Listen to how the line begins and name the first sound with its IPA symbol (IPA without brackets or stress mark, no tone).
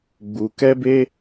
ɡ͡b